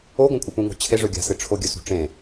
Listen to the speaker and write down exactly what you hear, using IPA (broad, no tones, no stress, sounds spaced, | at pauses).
o ɡʷ ɐ̃ kʷʼ ɨ p ũ ŋ o̤ t͡ɕʰ e ʐ ɵ ɡʲ a̤ s ɨ ʈ͡ʂʰ o ɡʲ ɵ s ṳ ʈ͡ʂ ẽ